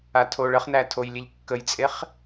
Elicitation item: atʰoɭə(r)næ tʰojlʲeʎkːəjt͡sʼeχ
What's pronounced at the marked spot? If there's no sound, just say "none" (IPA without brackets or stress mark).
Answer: χ